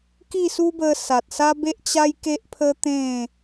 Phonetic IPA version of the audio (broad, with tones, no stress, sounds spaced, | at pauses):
k i˥˧ s u˦ b ə˧ s a˨ t̚ s a˦ b e˦ ʔ t͡ɕ a˦ j k e˦ ʔ pʰ ə˦ t̪ ẽ˥˧